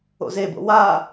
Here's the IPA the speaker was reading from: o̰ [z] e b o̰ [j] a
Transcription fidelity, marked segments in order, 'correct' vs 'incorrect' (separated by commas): correct, incorrect